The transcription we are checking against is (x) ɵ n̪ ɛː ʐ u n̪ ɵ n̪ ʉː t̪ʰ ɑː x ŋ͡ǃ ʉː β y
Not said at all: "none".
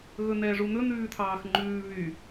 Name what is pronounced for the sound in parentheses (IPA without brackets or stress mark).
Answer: ɣ